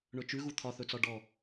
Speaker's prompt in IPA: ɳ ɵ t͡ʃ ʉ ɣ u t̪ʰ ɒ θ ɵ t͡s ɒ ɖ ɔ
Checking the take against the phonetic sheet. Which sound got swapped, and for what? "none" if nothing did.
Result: none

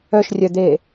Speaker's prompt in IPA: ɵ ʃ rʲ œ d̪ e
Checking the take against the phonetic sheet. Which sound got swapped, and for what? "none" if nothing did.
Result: ɵ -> œ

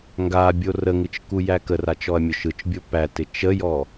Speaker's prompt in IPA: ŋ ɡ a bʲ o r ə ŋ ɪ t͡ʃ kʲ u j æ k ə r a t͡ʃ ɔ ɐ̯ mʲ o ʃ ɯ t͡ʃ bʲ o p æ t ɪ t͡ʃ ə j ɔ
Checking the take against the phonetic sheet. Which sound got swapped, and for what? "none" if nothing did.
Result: kʲ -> k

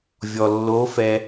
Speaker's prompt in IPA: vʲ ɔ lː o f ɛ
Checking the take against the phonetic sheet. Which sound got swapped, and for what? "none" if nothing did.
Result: none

